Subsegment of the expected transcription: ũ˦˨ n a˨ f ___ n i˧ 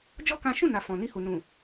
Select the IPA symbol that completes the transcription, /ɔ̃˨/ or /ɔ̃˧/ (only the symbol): ɔ̃˨